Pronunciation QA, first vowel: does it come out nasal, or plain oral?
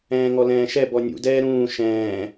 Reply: nasal